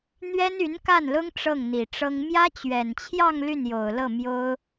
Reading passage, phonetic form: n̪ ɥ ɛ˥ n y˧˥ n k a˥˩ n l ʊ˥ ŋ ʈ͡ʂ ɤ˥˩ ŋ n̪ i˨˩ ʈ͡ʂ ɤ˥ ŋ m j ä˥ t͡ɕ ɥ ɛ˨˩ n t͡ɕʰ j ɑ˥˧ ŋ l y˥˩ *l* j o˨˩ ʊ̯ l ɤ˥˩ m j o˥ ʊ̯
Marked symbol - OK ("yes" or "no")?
no